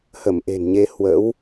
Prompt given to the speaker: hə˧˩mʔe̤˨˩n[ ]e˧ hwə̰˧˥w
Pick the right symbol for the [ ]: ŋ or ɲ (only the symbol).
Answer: ɲ